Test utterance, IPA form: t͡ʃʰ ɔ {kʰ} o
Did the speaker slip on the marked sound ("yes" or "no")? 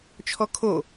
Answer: no